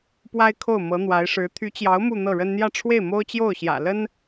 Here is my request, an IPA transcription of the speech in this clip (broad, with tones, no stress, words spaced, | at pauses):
pwa˥ɪ̯kʰo˥˩ʊ̯ mɤ˧˥n̪wa˧˥ɪ̯ʂɻ̩˧˥ t̪ʰy˧˥t͡ɕjɑ˧˥ʊ̯ mu˥˧n̪ɤ˥˩ɻə˥n n̪jä˥˧ʈ͡ʂʰwe˥˩ɪ̯mo˥ʊ̯t͡ɕjo˥˩ʊ̯ ɕjä̰˨˩lə˥n